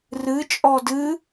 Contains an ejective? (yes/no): yes